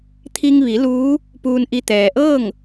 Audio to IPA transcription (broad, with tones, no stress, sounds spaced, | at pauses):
t̪ʰ i˧ ŋ ʋ i˩˧ l uː˧˥ | p uː˧ n ʔ i˧ t̪ ɛː˩ ʔ ɤː˥˨ ŋ